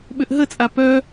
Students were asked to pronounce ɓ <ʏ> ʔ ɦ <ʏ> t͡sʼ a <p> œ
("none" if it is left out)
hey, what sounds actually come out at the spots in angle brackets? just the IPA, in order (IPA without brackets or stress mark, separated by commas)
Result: ʏ, ə, p